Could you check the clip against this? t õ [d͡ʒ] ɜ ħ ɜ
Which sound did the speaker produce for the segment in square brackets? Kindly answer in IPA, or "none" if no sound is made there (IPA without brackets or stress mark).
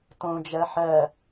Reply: d͡ʒ